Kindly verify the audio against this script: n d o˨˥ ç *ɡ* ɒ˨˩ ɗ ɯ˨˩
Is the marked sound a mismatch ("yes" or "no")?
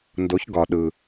no